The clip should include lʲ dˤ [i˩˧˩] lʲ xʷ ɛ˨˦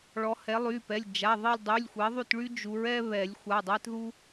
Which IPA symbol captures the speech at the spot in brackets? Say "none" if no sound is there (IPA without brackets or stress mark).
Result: y˩˧˩